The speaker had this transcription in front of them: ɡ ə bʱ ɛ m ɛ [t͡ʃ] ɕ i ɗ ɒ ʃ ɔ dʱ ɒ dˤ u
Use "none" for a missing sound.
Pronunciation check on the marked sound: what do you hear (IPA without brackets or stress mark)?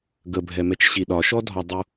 t͡ʃ